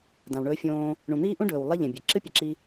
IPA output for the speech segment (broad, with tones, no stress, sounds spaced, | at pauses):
d ã˩ w ɳ ɵː˧ fʲ õː˧ | ɳ ũ˩ n̪ iː˥ ʔ ũ˥ ɖ ɵː˩ w lˠ i˥ ʎ ẽ˩ bʲ e˩ ǁ ɨ˥ pʲ ɐ˩ ǁ i˧